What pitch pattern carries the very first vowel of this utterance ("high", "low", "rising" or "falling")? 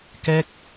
high